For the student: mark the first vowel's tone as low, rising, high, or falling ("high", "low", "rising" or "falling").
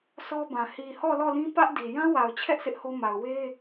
high